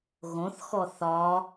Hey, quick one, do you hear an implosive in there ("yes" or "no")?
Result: no